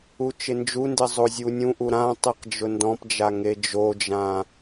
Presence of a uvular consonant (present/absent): present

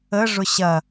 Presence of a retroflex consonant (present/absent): present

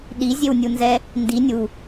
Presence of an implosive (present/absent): present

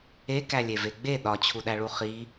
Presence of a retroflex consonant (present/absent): present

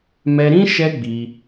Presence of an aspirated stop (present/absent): absent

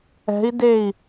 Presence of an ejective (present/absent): absent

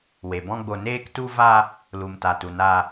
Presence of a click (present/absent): absent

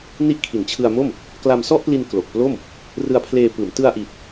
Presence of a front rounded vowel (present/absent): absent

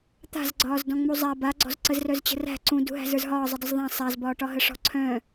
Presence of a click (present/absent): present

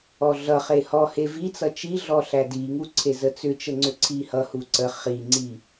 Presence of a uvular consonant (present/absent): present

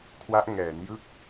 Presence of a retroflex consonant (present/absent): absent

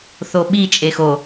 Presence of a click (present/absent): absent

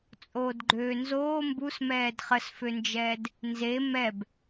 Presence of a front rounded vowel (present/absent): present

